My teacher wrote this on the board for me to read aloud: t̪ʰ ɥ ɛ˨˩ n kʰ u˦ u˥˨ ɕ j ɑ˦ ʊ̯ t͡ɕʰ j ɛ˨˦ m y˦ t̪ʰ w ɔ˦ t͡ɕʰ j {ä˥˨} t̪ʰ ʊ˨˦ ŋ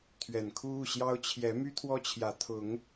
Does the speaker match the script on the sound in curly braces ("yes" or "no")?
no